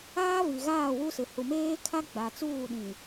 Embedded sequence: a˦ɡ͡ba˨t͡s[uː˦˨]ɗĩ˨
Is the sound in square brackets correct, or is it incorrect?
correct